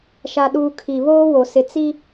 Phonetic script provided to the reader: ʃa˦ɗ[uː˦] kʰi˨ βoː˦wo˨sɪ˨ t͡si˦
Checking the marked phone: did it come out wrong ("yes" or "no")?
no